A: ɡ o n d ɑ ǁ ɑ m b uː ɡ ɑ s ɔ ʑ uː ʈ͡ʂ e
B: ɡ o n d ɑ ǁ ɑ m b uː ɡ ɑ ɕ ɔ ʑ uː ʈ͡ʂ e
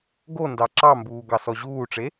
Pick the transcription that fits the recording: A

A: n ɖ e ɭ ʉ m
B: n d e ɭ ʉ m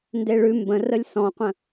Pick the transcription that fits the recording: B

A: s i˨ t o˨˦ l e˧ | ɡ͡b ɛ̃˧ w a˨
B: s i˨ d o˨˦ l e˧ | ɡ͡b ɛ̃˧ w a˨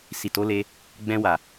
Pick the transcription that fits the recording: A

